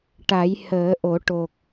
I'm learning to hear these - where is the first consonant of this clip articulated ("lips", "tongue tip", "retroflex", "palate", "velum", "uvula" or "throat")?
retroflex